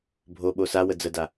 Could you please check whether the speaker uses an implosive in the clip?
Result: yes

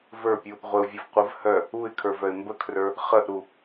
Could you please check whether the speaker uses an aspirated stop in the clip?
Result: yes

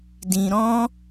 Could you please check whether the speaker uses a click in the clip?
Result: no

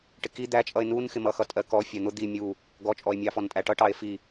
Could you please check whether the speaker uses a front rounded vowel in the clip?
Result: no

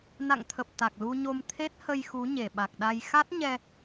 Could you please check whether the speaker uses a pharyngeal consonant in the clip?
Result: no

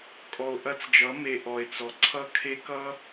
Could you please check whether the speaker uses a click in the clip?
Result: yes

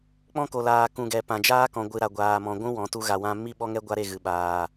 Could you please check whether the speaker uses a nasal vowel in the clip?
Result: yes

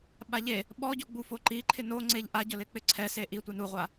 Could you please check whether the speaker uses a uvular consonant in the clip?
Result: yes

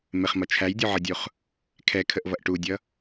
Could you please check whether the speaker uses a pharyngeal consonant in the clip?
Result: yes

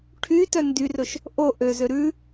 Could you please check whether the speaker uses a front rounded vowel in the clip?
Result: yes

